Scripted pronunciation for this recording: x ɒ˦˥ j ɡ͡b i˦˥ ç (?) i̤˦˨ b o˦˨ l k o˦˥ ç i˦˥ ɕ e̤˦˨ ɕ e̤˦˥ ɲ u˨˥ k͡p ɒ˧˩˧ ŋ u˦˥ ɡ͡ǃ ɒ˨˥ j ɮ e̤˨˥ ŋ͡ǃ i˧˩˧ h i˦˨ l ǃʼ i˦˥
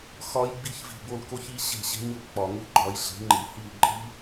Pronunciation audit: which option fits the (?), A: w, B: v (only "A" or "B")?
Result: B